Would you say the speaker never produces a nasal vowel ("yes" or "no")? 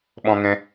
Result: no